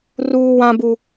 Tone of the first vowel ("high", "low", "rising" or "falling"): high